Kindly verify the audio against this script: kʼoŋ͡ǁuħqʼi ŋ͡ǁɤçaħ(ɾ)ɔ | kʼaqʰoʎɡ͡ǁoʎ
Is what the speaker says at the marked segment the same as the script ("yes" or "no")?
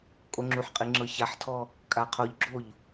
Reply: no